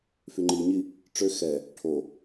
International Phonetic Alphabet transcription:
f y ŋ͡ǃ i ɲ i | ʈ͡ʂ ø x ɛ | ʈʰ o

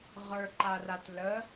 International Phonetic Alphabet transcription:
ʁ ə˞ ǃ a r a t l ə

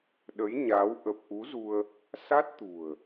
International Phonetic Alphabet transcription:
ɗ ə˨˦ j ɲ a˨˦ w ʔ ə˨˩ p̚ ʔ u˨˦ z u˧ ə̯ | s a˦˥ t̚ t̪ ṳ˨˩ ə̯

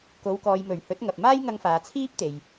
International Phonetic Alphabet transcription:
k o˨˧ w k ɔː˨ j m ɵ˨˩ ɥ h ɵ˨˥ t̚ ŋ ɐ˨ p̚ m aː˥ j ŋ ɐ˧ ŋ f aː˨ t͡sʰ iː˥ p̚ t̪ e˨ j

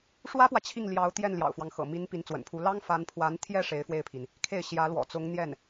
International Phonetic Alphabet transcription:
ʂ w ä˥ p w ä˨ t͡ɕʰ i˥˩ ŋ l j ɑ˧˥ ʊ̯ t̪ j ɛ˥˩ n l j ɑ̰˨˩ ʊ̯ f w ɑ˦ ŋ x ɤ̰˨˩ m i˧˥ n p i˧˥ n t͡s w ə̰˨˩ n pʰ u˧˥ l ɑ˥ ŋ f a˧˥ n pʰ w a˧˥ n t̪ʰ j ɛ˥˩ ʂ e˧˥ ɪ̯ f w e˥˩ ɪ̯ pʰ i˩ n | kʰ e˥˩ ɪ̯ ɕ j ä˧˥ l w ɔ̰˨˩ t͡s ʊ˧˥ ŋ n̪ j ɛ˥˩ n

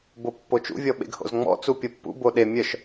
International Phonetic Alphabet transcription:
b o pː o t͡ʃ ṵ vʲ ɔ ɓ ḛ ɡ h o̰ z ŋ͡m ɔ̰ t͡s u pʲ o pː ṵ b o ɗ e mʲ œ ʃ

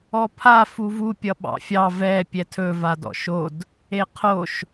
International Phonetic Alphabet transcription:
ɔ pʰ a f u v u pʲ ʌ ɓ ɑ̰ fʲ ɑ v ɛ pʲ ɛ tʰ ɵ v a d ɔ̰ ʃ o d | e qʰ o ʃ

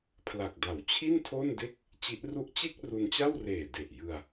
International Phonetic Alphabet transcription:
pʰ l a˨˩ k̚ d a˨˩ w t͡ɕʰ i˥˩ n tʰ o˥˩ n d e˥˩ k̚ | t͡ɕ i˦˥ ʔ r u˥˩ ʔ t͡ɕ e˥˩ k̚ r u˧ n t͡ɕ a˥˩ w r eː˨˩ d e˨˩ ʔ j ɯ˧ a̯

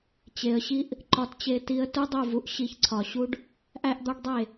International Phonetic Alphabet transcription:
t͡ɕ e˨ ə̯ ɕ i˦ ʔ | ǃ ɒ˧ t t͡ɕ e˧ t i˧ ə̯ t u˦ dˤ u˦˨ v u˧ ʔ ɕ i˧ ç ǀʰ ɒ˨ ɕ u˦ ɖ | ʔ æ˦ ʔ d̪ ɒ˦ ɖ dˤ e˦˨

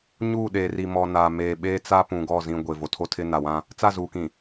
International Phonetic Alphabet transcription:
ɲ uː˦˨ ɗ eː˨ r i˨ m ɔ˨ n aː˨ m eː˨ ɓ eː˦ t͡s a˦ p ũ˨ ɡ ɔ˦˨ z ĩ˦ ɡʷ e˨ v o˨ tʰ o˦ tʰ ɪ˦ n a˨ w ã˦ | t͡s a˦˨ z uː˨ k ĩ˨

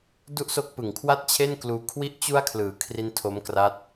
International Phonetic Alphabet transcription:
d u˥˩ ʔ s o˦˥ k̚ p ɯ˨˩ ŋ kʰ w a˥˩ t̚ t͡ɕʰ e˥˩ n k l uː˧ kʰ w i˦˥ ʔ t͡ɕ u˦˥ a̯ kʰ l ɯː˩˦ kʰ r i˦˥ n tʰ o˦˥ m k r a˦˥ t̚

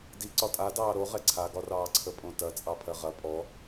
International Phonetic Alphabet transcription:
d i ǀ ɒ tʼ a d ɑː ɾ o ʁ ɛ ǀʰ a ɡ ɒ r ɑː ǀʰ ə pʼ õ t ɐ t͡sʼ ɑ pʰ ɜ ʁ ɐ pʼ ɔ

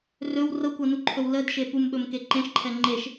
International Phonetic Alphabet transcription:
r ɵ w r ɤ kʷ ɤ n u ǃʰ ɵ w l ə d ʃ e p u m ɓ ɵ m k e ǃ ẽ ʃ ǃʰ ɛ ŋ͡ǃ e ʃ

